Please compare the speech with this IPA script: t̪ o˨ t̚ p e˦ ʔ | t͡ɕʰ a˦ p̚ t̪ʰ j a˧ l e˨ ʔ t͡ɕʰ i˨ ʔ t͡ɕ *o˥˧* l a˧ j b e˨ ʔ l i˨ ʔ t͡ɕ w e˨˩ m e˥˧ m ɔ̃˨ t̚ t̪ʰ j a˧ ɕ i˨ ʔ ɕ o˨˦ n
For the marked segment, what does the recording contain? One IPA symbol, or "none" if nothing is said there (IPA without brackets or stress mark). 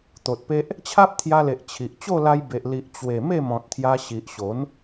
o˥˧